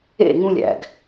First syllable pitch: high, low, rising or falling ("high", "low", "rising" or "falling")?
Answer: falling